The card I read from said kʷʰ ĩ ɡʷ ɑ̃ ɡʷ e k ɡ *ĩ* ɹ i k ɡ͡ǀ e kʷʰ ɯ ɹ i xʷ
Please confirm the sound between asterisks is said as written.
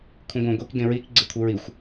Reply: no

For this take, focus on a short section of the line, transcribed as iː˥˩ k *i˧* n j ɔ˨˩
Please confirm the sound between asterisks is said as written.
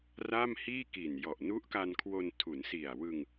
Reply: no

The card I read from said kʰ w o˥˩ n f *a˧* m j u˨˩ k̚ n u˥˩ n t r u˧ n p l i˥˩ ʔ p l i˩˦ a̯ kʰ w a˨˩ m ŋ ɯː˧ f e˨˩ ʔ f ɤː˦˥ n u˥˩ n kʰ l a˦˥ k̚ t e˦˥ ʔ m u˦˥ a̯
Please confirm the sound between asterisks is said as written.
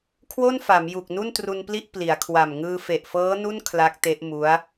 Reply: no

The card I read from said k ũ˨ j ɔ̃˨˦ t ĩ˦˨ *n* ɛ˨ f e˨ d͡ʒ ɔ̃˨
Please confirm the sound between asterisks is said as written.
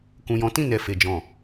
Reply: yes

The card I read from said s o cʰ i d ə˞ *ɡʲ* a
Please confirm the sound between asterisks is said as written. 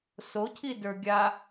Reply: yes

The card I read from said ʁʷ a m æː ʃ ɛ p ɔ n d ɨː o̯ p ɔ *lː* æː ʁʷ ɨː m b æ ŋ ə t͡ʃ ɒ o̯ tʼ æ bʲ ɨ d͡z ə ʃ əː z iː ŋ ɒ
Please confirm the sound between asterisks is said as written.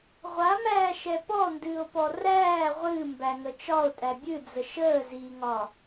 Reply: no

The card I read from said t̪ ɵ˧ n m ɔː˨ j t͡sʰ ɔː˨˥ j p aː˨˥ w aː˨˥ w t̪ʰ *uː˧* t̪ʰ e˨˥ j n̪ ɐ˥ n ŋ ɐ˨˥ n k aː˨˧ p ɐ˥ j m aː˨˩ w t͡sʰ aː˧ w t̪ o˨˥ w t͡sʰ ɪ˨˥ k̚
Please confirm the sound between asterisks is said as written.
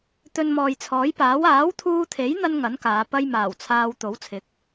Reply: yes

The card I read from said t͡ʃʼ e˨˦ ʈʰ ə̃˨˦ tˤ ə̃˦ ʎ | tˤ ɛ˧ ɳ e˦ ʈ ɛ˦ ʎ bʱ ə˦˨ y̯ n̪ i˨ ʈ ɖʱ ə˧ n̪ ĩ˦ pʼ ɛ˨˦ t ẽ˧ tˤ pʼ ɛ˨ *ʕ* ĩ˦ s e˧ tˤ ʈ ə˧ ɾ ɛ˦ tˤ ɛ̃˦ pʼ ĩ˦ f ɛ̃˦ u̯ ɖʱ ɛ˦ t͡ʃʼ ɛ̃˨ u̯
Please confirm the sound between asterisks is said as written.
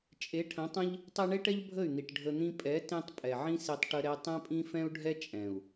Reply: yes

